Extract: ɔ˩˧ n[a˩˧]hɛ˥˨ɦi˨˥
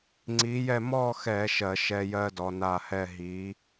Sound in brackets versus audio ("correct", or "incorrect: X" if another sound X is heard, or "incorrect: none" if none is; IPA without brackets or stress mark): incorrect: a˧˩